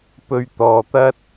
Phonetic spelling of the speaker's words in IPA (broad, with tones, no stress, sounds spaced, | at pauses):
p ɵ˨ ɥ t̪ ɔː˨ t̪ ɐ˥ t̚